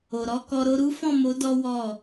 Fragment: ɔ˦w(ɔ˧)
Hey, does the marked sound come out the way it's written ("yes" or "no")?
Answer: no